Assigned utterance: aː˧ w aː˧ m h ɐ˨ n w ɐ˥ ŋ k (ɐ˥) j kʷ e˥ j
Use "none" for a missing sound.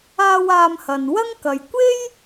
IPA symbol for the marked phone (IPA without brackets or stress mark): ɐ˨